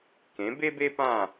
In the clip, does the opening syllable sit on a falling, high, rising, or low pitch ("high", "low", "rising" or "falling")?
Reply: rising